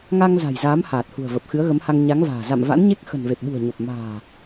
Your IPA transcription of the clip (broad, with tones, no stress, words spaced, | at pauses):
ŋa˧ŋ za̤˨˩jzaː˨˦m haː˨˩t̚hṳ˨˩ə̯ və˨˩p̚xɨ˨˦ə̯ɣə˨˦mha˧ŋ ɲa˨˦ŋ va̤ː˨˩ za̰˧˨mva̰˧˥n ɲe˦˥k̚xə̤˨˩n ve˨˩p̚ɓṳ˨˩ə̯ɲo˨˩p̚ ma̤ː˨˩